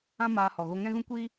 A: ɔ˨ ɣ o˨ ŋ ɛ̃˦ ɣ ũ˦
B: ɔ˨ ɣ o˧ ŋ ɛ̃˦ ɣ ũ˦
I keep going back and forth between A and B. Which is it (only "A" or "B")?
B